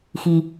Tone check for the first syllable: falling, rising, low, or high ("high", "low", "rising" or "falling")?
low